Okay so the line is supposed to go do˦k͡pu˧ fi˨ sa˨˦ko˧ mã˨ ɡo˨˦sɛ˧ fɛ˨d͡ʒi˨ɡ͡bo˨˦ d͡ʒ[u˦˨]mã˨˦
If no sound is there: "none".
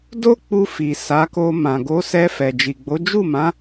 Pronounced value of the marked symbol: u˦˨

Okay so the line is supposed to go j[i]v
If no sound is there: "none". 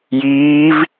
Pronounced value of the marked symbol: iː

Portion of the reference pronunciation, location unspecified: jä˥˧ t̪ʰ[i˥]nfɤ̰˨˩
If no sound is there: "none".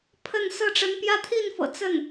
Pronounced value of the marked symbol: i˥˩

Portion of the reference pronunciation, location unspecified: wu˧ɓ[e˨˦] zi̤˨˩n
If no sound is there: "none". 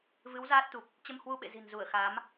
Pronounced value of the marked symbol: ḛ˧˨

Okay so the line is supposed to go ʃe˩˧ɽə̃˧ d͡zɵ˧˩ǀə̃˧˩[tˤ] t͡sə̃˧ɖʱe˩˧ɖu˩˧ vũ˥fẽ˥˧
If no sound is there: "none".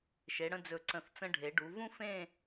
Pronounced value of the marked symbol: θ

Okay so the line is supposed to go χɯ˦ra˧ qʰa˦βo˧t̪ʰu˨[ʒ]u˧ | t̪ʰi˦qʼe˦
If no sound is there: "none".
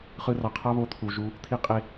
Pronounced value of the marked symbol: ʒ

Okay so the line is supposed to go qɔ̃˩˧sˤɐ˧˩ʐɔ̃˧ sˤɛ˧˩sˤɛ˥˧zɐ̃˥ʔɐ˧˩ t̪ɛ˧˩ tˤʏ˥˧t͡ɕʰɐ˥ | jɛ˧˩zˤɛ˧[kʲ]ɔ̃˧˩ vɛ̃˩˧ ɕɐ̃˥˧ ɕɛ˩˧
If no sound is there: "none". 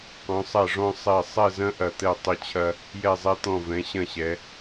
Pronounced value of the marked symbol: t̪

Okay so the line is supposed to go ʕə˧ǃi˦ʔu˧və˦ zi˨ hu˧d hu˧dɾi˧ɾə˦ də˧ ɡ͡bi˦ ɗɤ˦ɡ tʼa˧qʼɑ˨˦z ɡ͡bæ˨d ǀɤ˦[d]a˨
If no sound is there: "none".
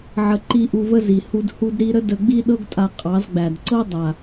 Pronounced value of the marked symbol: dˤ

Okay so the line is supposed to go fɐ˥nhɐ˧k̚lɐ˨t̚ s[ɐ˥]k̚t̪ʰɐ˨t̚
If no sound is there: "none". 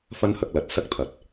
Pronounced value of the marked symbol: ɐ˥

